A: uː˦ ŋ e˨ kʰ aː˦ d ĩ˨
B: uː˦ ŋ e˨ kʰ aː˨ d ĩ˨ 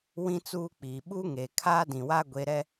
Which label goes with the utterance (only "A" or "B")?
A